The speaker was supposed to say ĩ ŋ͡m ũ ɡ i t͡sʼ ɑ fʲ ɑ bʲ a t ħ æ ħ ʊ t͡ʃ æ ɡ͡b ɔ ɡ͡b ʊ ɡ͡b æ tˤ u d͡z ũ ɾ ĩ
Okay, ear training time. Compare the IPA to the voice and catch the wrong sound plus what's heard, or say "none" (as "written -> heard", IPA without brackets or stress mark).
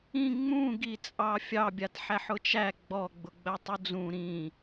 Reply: none